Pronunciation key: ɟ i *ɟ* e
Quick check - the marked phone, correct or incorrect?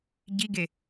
incorrect